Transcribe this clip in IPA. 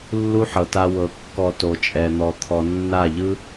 lːu˦ħɤ˨ta˧ wɤ˨ kːɔ˧to˨t͡ʃʼɛ˨n̪ɔ˨ t̪ʰɔ˨nːa˦˨ʎɯ˦

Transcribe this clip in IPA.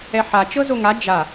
ɛħa t͡ʃɤzoŋa d͡ʒa

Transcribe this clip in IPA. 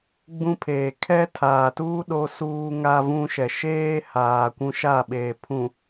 ɡ͡bũ˦pʰeː˨ kʰɛ˦tʰaː˨ tuː˦ ɗo˦suː˦ŋa˦vũ˦ ʃɛ˨ʃeː˦haː˨ kʷũ˦ʃa˦˨ɓeː˨ pʰũ˨

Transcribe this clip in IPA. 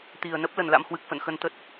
t̪i˨˩ə̯nə˦˥p̚ lə˨˩nla̰˧˥m hwɨ˨˩k̚fə̰˧˨n xə˧n t̪ə˦˥t̚

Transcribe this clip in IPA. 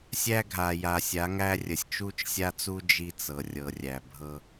sʲæ˦ɡʱa˨ ja˨sʲa˨˦ŋæ˦rʲə˨sʲ t͡ʃu˦t͡ʃsʲa˦t͡su˦ d͡ʒi˦t͡sɤ˨rʲɤ˨rʲæ˨ bʱɤ˦

